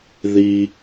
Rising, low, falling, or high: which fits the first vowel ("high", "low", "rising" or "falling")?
low